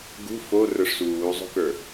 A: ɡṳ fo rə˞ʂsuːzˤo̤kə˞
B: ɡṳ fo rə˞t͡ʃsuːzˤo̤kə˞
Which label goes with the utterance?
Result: A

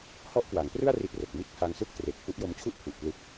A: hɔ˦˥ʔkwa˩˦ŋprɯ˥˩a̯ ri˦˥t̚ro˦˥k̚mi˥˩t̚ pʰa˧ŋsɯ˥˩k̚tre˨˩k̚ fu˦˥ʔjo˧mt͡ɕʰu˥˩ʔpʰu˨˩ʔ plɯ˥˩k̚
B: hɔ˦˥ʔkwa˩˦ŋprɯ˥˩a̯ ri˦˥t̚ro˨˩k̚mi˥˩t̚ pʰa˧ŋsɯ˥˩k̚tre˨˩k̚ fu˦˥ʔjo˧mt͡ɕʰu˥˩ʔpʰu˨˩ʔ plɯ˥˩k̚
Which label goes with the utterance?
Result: B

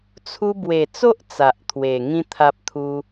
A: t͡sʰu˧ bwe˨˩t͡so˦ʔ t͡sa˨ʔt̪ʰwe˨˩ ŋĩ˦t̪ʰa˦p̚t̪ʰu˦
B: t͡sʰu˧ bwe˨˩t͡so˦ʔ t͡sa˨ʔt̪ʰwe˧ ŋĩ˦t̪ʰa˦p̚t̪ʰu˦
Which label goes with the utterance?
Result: A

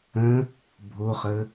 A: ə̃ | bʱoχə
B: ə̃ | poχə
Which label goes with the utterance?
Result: A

